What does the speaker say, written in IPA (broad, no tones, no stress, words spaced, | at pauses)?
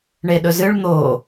ɳeɗɵzɨɭ n̪o